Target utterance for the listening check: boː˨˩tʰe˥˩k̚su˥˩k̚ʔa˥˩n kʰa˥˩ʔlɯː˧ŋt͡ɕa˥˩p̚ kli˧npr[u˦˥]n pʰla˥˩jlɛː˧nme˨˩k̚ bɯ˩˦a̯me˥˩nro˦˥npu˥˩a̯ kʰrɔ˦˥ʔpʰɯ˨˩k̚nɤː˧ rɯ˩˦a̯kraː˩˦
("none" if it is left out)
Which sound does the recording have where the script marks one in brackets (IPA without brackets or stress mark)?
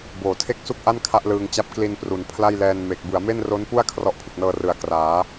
u˩˦